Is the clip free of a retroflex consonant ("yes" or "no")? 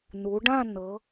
no